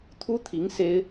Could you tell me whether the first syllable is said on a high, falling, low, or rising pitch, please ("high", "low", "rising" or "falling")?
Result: high